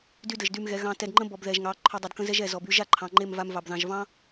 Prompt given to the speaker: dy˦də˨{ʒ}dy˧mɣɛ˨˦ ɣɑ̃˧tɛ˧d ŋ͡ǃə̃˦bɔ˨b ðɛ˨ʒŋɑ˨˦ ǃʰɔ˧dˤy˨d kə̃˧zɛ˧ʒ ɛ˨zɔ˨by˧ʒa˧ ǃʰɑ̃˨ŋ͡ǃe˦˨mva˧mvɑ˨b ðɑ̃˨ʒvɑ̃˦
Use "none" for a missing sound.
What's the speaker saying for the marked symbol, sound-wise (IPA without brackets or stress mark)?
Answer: ʒ